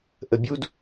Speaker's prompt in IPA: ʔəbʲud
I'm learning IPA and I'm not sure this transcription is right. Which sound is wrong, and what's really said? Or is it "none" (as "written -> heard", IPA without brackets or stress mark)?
none